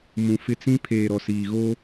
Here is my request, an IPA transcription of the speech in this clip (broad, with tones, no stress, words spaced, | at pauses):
mũ˨fɪ˦t͡sĩ˦ pʰeː˨ɾɔ˨siː˨ ɣo˦